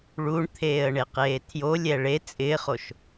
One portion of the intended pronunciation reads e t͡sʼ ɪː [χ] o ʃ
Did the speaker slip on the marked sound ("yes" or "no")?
no